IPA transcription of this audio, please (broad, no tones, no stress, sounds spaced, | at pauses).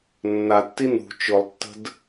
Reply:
nː a tː i n ṳ t͡ʃ ʊ lˠ tː ə̤ d